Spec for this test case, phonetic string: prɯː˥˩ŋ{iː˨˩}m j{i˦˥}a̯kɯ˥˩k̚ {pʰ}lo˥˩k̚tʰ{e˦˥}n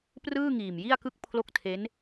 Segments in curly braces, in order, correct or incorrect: correct, incorrect, correct, correct

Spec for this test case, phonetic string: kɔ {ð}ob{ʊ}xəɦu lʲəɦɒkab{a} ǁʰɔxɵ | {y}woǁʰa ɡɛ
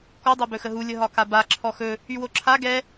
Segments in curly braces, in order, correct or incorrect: incorrect, incorrect, correct, correct

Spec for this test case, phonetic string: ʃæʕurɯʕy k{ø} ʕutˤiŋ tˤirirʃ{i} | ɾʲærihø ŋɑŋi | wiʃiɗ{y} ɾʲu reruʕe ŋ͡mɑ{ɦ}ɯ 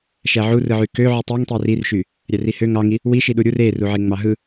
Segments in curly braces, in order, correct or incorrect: correct, incorrect, incorrect, correct

